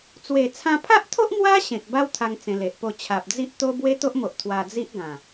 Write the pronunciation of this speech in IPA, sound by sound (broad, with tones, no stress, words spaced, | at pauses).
t͡swe˨˩t͡sʰã˧pʰa˦ʔt̪ʰo˦ʔ mwa˦ ɕẽ˨k̚ba˦w t̪ʰa˧ŋ t͡sẽ˧le˨ʔpo˥˧ t͡ɕʰa˨p̚d͡zi˦ʔt̪o˦ bwe˦t̪o˦ʔmo˨ʔ t̪ʰwa˧d͡zi˦ʔɡã˨˩